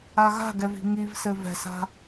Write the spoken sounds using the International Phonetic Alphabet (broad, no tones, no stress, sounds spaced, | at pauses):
a ɣ a̤ ɡ ɛ v i̤ ŋ i v s ɘ v ɛ̤ s a̤